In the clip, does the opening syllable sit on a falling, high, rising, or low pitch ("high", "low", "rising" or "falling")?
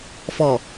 low